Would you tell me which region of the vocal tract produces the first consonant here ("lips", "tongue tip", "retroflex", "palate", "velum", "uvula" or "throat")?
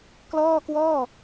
velum